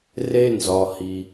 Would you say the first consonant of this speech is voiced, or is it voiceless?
voiced